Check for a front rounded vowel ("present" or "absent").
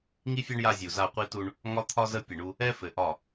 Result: absent